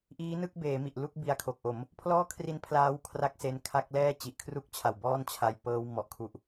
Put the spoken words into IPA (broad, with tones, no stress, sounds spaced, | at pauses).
ʔ iː˦˥ n ɯ˥˩ k̚ b eː˩˦ m i˨˩ ʔ l u˥˩ k̚ b i˧ a̯ kʰ o˨˩ k̚ ʔ o˩˦ m | pʰ l ɔː˥˩ kʰ r i˦˥ n pʰ l aː˦˥ w kʰ r a˥˩ k̚ s e˦˥ n kʰ a˥˩ k̚ l ɛː˥˩ t͡ɕ i˨˩ ʔ kʰ r u˥˩ k̚ t͡ɕʰ a˨˩ w b ɔː˥˩ n t͡ɕʰ a˧ j p ɤː˦˥ w m ɔ˨˩ ʔ kʰ u˨˩ ʔ